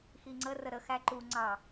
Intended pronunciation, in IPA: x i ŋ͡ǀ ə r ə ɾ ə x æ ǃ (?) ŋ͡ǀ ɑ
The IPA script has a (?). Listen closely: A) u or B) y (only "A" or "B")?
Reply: A